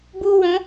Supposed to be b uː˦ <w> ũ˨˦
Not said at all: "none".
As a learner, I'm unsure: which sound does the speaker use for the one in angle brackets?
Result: w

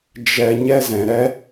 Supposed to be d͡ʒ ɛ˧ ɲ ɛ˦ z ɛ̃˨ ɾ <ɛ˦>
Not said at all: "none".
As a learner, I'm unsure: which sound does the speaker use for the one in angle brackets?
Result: ɛ˦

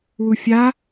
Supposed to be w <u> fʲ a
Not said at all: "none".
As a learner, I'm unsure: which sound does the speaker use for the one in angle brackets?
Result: u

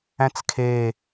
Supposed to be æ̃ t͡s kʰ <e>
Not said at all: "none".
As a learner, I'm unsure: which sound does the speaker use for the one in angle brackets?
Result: e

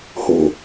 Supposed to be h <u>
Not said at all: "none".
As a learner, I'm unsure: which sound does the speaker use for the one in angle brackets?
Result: o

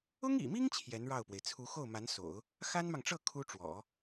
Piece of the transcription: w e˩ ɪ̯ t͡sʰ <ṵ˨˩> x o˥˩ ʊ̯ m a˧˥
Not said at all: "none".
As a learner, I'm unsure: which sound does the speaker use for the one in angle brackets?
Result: u˧˥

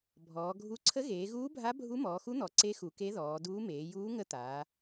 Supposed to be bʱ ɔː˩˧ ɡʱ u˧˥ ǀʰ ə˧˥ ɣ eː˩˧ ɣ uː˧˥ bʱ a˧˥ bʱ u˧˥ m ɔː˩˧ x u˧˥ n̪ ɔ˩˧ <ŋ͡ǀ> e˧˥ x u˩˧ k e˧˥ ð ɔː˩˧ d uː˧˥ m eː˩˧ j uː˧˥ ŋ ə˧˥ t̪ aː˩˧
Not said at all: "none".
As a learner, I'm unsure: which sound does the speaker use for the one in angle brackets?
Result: ǀ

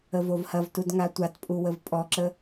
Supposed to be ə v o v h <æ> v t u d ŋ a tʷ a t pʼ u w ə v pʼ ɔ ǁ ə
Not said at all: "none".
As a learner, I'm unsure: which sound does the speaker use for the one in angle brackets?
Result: ɐ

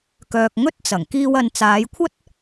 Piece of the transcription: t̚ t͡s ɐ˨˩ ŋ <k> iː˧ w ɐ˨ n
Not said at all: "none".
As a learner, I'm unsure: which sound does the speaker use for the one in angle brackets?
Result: k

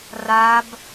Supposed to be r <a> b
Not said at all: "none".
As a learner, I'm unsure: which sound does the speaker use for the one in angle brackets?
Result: a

